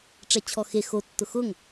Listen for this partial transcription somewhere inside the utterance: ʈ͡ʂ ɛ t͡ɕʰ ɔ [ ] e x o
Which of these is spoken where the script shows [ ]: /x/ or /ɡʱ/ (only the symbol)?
x